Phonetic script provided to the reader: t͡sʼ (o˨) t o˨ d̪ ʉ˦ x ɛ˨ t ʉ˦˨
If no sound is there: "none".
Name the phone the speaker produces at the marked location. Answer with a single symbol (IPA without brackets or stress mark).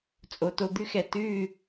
o˨